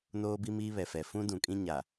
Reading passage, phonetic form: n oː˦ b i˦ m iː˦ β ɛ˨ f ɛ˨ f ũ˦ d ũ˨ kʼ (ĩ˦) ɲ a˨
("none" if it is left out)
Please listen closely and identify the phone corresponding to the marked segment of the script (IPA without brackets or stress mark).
ĩ˦